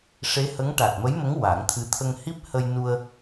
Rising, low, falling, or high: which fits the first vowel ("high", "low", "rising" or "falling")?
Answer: rising